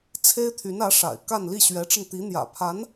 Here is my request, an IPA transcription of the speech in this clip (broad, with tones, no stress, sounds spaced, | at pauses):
t͡sʰ e˥ ɪ̯ t̪ʰ y˧˥ n ä˧˥ ʂ a̰˨˩ ɪ̯ k a˥˧ n l i˥˩ ɕ ɥ ɛ˧˥ ʈ͡ʂ ə˧ n t̪ i˧˥ n̪ j ä̰˨˩ pʰ a˧˥ n